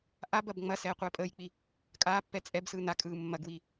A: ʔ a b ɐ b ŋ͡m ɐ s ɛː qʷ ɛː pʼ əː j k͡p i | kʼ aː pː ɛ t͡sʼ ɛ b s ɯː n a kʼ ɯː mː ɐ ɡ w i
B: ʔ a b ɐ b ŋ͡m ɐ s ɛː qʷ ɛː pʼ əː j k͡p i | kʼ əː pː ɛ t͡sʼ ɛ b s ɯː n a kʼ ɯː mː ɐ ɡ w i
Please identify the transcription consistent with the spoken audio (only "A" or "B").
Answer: A